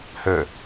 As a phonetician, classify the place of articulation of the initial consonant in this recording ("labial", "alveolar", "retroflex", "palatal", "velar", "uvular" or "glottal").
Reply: glottal